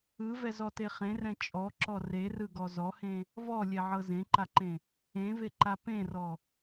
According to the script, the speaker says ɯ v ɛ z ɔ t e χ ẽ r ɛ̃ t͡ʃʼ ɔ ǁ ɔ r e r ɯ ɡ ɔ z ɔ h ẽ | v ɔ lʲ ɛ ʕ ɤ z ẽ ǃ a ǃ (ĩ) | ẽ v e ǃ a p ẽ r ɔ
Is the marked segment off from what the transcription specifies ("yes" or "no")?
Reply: yes